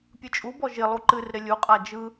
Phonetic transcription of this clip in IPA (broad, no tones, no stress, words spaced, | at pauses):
pʲɯt͡ʃʼubɔ ʒɪ lˠuǃɨrɾɪ lʲuqʼa d͡ʒɯ